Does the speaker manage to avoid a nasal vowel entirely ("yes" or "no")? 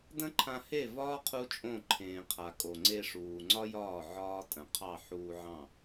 no